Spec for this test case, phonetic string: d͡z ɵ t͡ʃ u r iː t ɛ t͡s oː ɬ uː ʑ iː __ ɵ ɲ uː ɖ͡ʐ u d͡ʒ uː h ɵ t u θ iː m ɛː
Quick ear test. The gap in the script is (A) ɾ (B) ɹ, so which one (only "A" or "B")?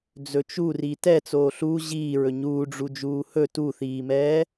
B